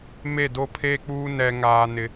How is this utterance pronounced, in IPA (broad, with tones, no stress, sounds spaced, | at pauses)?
m e˦˨ d o˦ pʰ eː˦ k͡p uː˦ n ɛ˦ ŋ aː˦ n ɪ˦